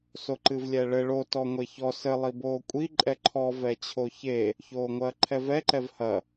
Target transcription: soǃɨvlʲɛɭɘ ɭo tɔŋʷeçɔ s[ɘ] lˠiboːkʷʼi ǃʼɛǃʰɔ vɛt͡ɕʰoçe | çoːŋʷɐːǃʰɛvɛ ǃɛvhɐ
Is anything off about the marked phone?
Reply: no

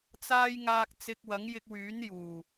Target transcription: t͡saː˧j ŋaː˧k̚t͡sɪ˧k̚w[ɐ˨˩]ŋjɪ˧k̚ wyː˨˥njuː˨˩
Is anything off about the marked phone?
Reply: yes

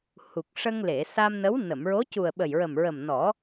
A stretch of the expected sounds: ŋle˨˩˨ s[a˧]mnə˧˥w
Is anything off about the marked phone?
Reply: no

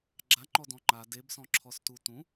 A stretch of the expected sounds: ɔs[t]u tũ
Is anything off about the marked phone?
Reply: no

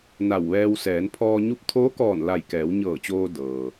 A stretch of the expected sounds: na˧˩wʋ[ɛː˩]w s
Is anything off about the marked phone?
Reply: yes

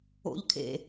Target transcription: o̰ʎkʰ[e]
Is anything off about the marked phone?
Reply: yes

